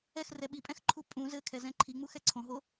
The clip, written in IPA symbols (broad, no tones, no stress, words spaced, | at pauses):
ɛxrɛ ɓipʼɛ̃xǃʰu pʼũ zɘkʰɛzɛ̃ ǃʰiŋ͡muxɛ ǀʰõɦo